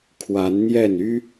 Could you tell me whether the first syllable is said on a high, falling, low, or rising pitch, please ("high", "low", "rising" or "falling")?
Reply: rising